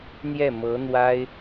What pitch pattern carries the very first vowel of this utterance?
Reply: falling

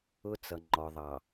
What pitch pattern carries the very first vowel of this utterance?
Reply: high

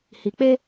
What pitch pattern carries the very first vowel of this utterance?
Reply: low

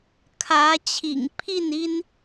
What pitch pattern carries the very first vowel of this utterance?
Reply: rising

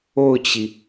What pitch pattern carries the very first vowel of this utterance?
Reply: falling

